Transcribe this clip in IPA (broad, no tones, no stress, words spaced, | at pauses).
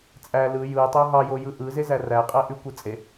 t͡sʼæ lɯ jɯ tˤæɦɑjo jɯʔɯze zæræqʼæ ʔykʷɯ t͡sʼe